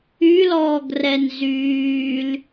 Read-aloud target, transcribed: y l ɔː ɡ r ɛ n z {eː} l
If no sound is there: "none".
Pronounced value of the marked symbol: yː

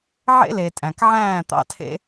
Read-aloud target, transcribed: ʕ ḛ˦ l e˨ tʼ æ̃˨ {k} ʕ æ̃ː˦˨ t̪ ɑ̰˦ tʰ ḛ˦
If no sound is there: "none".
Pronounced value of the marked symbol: k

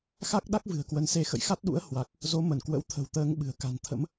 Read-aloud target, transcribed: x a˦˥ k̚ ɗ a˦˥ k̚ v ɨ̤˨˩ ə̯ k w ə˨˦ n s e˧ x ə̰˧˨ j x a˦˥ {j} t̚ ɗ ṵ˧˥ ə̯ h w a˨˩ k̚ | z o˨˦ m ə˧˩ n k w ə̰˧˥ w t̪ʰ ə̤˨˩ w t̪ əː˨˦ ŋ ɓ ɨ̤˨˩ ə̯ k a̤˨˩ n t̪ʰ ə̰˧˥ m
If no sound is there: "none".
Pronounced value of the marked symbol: none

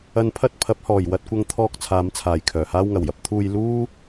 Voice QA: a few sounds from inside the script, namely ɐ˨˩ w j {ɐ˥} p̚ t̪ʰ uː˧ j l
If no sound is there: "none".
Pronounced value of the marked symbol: ɐ˥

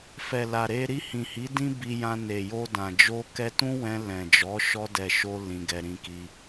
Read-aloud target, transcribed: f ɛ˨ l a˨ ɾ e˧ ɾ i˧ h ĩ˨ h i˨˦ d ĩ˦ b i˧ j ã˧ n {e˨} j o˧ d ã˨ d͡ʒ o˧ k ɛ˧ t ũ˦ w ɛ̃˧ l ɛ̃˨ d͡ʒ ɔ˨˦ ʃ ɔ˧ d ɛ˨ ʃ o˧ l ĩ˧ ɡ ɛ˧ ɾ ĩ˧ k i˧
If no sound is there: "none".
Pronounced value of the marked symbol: e˨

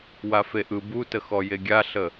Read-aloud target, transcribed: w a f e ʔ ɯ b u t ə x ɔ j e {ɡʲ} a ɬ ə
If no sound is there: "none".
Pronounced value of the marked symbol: ɡʲ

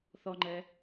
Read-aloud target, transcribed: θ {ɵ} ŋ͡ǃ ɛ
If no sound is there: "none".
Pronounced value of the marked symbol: ɔ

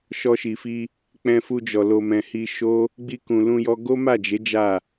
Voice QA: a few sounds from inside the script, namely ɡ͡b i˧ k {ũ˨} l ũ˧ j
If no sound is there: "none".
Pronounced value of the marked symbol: ũ˨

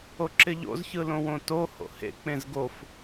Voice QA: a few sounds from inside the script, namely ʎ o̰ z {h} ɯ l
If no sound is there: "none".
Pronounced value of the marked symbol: ç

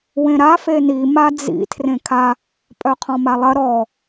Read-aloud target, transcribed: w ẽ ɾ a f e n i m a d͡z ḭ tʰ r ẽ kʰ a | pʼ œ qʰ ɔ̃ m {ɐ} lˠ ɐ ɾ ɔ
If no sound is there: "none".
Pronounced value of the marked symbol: a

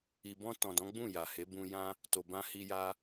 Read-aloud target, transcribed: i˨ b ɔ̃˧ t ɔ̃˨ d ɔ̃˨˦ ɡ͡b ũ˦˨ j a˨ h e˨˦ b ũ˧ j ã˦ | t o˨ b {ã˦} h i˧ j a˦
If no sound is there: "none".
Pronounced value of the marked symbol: ã˧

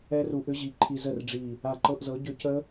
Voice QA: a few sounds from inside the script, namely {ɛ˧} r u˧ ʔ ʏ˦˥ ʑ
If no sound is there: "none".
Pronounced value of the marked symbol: ɛ˦˥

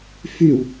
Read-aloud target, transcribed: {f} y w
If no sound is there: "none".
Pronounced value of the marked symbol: f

